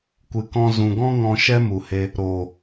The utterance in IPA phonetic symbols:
kʷ ɨ˨ k ɔ̃˧ z ũ˨ ɡ ɔ̃˦ ŋ ɔ̃˧ ʃ ɛ˦ m u˨ h e˧ | ɾ oː˨

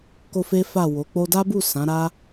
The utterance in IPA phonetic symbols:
k o˦ f e˦ f a˦˨ w o˨˦ k͡p o˧ d a˦ b u˦˨ s ã˨˦ ɾ a˦

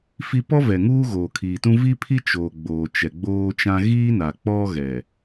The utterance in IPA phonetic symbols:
f i˦ p ɔ˦ v ɛ˨ ŋ uː˦ ɣ oː˨ kʰ iː˨ t ũ˦ v i˦ pʰ i˦ t͡ʃ oː˨ ɡ͡b oː˨ t͡ʃ ɛ˨ ɡ͡b oː˦ t͡ʃ ã˦ ɣ iː˦ n a˨ k͡p ɔ˦ ɣ ɛ˨

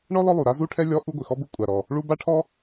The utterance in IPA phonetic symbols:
ɳ ɔ˥ l ɔ˥ lˠ u˩ ɾ a˥ z u˥ ʈʰ ɛ˥ lʲ ɔ˥ ʔ u˥ ɡʷ ɪ˩ x ɔ˥ b u˥ kʷʼ a˩ ɾ ɔ˩ | ɭ u˥ b a˥ ʈʰ ɔ˥

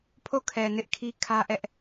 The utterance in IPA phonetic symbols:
pʰ o˦˨ kʰ ɛ˨ n ɪ˦ ʔ kʰ i˦ kʰ ä˦ ʔ ɛ˦ ʔ

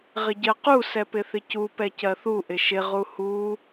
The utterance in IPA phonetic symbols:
ʁ ɪ ɟ ɜ q u s ɛ p ɪ θ ɪ c u p ɛ c ɜ θ u ʔ ɪ ʃ ɪ ʁ u h u

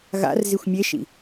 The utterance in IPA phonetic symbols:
ɣ a̰ r z i xʷ mʲ e ʃ ḭ

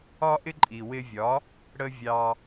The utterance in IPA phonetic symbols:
ɒ˥ ʔ ɪ˥ ǃʼ i˩ w ɪ˧ vʲ ɒ˩˥ | ɽ ə˥ vʲ ɑ˧

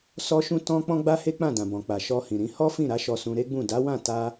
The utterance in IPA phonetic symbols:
s ɔ˧ ʃ ũ˧ t ɔ̃˦ k͡p ɔ̃˦ ɡ͡b a˦ h e˦ k͡p ã˦˨ d ã˨ b ɔ̃˨ k͡p a˨ ʃ ɔ˧ h ĩ˨ ɾ ĩ˨˦ h ɔ˦ f ĩ˦˨ ɾ a˨˦ ʃ ɔ˧ s ũ˧ ɾ e˦ ɡ͡b ũ˦˨ d a˨˦ w ã˦˨ t a˧

